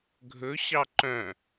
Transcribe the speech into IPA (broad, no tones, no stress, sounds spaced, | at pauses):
ɡʱ ɵ ɕ ɑ ǃ œ̃